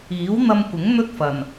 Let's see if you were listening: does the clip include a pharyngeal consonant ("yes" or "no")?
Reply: no